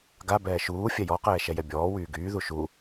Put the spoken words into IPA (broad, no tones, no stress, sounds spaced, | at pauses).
ɡ a b ɛː ʃ uː fʲ ɛ j ɔ q ɛː ʃ ɛ j ɛ bʲ ɔː w yː ɡ yː ð u ʃ u